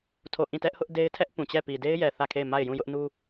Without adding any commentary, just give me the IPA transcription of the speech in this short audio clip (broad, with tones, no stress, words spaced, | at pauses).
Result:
tʰo˦˨ ʔĩ˦˨ tɛ˦ʔhʊ˦ʔde˦ɪ̯tʰɛ˦ʔ pũ˨t͡ɕɛ˦˨ pi˨de˦ɪ̯jɛ˨ θä˦˨kʰe˦˨ɪ̯ ma˦˨ɪ̯jũ˦˨jʊ˦ʔnu˦